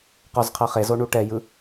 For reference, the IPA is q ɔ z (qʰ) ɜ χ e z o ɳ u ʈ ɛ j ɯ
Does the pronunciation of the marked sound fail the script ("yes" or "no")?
no